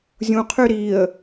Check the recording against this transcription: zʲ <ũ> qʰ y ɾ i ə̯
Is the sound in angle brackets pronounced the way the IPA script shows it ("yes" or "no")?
yes